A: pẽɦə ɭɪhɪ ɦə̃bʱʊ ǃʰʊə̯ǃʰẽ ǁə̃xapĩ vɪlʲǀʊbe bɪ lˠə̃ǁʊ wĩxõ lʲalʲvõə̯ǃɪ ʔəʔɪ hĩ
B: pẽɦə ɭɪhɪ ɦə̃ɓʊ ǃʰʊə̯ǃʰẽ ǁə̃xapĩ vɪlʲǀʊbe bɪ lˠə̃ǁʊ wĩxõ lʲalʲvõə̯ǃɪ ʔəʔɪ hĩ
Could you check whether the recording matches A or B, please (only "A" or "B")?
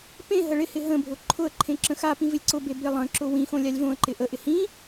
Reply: A